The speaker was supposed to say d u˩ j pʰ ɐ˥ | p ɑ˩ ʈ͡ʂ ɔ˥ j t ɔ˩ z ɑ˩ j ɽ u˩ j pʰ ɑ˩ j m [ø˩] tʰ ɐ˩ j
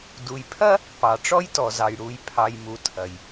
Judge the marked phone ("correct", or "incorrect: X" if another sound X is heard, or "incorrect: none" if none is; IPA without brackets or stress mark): incorrect: u˩